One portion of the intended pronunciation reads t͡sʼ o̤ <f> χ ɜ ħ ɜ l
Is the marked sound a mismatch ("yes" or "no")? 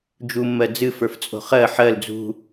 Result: yes